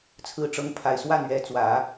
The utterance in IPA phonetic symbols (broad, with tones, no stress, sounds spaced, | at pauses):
t͡sʰ ɹ̩˧˥ ʈ͡ʂ ɤ˧˥ ŋ pʰ a˨˩ ɪ̯ s w a˥˩ n ɥ ɛ˧˥ t͡s w ä˨˩˦